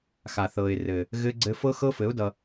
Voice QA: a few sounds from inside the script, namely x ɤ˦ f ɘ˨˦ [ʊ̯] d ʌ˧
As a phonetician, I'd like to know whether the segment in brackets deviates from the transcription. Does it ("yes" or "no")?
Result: no